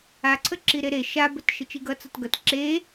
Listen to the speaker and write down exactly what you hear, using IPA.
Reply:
a ǀʰ ə ǁ i ɾ e ɾ e ʃ a b ə t ʃ ə t͡ʃ i ɡ ʌ t͡s ʌ t ɡ ʌ t ǁ e

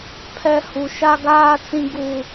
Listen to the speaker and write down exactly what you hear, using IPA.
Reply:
pʰ ɛ˨ h u˨ ʃ a˦ ɡ aː˦ t͡s ĩ˦ ɡ u˦

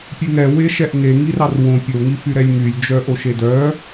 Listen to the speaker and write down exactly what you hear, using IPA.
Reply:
pʲ ʉ ŋ ɛ w e ʃ ɛ ʔ ŋ e ŋ i r ɑ r w õ pʲ o ŋ i f y ɾ ɛ lʲ ŋ y lʲ d͡ʒ œ ʔ o ʃ e d œ

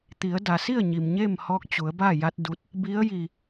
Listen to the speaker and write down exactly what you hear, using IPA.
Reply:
t̪ i˩˧ ə̯ d a˩ s i˥˨ ə̯ ɲ i˩ m ɲ eː˥˨ m h ɔː˧˥ k̚ t͡ɕ u˩˧ ə̯ b a˥˨ j a˧˥ t̚ d u˧˥ t̚ | b i˧˥ ə̯ j i˧˩

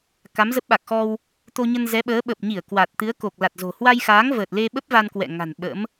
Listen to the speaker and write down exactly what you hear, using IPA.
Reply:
k a˨˦ m z ə˦˥ p̚ ɓ a˨˩ k̚ x ɔ˧ w | t̪ o˧ ɲ ə˧ n z ɛ˨˦ ɓ əː˨˦ ɓ ə˨˩ p̚ ɲ i˧˩ ə̯ k w a˨˩ t̚ t̪ ɨ˨˦ ə̯ k o˨˩ k̚ l a˨˩ t̚ z o̤˨˩ h w a˧ j x aː˨˦ ŋ v əː˨˩ t̚ l e˧ ɓ ə˦˥ p̚ v a˧ n k w ɛ̰˧˨ ŋ a̤˨˩ n ɓ ə̰˧˥ m

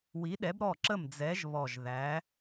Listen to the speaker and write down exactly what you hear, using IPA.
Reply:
w i˨˥ ɗ ɛ˨˥ b ɾ ɔ˥˩ ǁ ə˥˩ m d͡z ɛ˨˥ ʒ β ɔ˨˩ ʒ ð æ˨˥

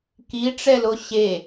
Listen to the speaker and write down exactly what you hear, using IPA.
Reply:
k i ʈ͡ʂ ɛ l o ɕ e

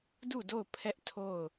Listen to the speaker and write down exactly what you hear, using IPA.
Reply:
d u˦˨ d o˦˨ ʊ̯ pʰ ɛ˦ ʔ tʰ o˦˨ ʊ̯

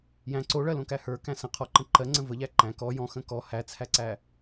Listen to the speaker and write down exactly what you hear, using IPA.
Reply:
j æ̃ ǀ o ɭ ɜ l õ k æ h ə˞ k æ̃ s ə̃ qʰ ɔ ǃ ə̃ ǃ ɜ ŋ͡ǀ ə̃ v ə ʎ æ ǃ æ̃ k ɔ j ɔ̃ x ə̃ k ɔ h æ t͡sʰ æ ǀ æ

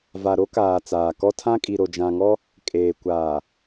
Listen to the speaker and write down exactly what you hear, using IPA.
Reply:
v a˨ ɾ o˦ k aː˨ t͡s aː˨ k ɔ˦ tʰ ã˦ kʼ i˨ ɾ o˨ d͡ʒ ã˨ ŋ ɔ˦ | kʼ eː˨ kʷ aː˨

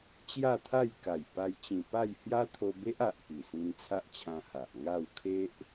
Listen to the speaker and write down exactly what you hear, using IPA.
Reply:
t͡ɕ j a˥˧ t̪ʰ a˥˧ j k a˨˩ j p a˧ j t͡ɕ ĩ˨˩ p a˥˧ j h j a˦ t̪ʰ o˧ b e˦ ʔ a˨ ʔ k i˨˩ s ĩ˧ n t͡sʰ a˦ ʔ t͡ɕʰ ã˧ h a˨ ʔ ŋ a˥˧ w kʰ e˦ ʔ

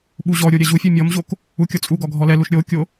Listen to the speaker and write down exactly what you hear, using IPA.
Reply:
ɓ u ʑ ɔ ɾʲ o ɾʲ ɛ ʑ u fʲ œ mʲ ɔ m ʑ o k | u kʲ ɔ t͡sʼ u ɡ ɔ ɡʱ ɔ l ɛ l u ʃ ɾʲ o kʲ o

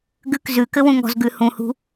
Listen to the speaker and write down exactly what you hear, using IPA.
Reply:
ɡ ʉ k z ʉ k ɘ w ũ ŋ ɔ̤ z ɡ ʉ h ũ h ṳ

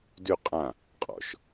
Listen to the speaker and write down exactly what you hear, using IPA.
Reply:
d ʉ qʼ ã | qʼ ɔ̰ ʃ

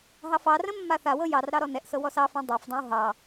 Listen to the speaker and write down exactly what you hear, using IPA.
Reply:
ɦ ɑ f ɑ r ə̃ mː a θ a w ɤ j ɑ r ɾ ɑ ɾ ɔ n ɛ ʔ s ɤ w ɔ s ɑ f õ dˤ ɤ f dˤ õ w ɦ ɑ

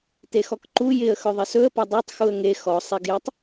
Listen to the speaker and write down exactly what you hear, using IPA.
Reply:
t e x ɔ k ǃ u j ɪ ə̯ x ɵ ðˤ ɪ s ɵ ə̯ p ɐ dˤ o tˤ x u ə̯ ŋ e x ɔ sˤ e ɡ j ɐ tˤ

